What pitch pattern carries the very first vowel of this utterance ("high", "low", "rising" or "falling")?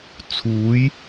rising